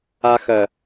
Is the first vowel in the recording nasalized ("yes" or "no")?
no